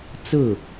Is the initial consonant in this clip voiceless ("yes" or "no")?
yes